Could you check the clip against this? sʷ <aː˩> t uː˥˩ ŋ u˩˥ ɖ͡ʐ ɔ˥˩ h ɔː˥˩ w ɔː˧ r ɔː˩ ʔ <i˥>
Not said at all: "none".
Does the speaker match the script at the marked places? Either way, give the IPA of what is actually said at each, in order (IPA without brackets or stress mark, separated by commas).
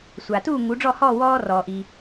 a˩, i˩